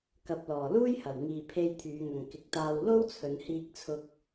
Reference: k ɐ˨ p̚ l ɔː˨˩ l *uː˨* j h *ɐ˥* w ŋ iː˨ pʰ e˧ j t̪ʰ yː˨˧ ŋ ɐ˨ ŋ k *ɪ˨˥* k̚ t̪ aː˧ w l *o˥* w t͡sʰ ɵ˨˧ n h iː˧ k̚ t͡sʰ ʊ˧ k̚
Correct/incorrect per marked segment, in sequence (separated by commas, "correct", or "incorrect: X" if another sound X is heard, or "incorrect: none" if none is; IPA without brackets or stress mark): incorrect: uː˥, incorrect: ɐ˨˩, correct, correct